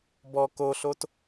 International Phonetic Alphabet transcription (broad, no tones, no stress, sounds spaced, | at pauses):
b ɔ k o ɬ o t